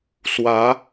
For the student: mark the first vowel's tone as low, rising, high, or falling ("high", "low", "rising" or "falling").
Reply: rising